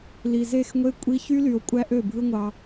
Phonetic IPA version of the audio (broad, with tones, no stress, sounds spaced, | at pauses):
l i˨ z e˦˨ x ŋʷ e˦ kʷʼ i˧ ç y˦ l y˨ o̯ kʷʼ æ˦ ʔ ø˦˨ bʱ ɯ˦ ŋʷ ɑ˧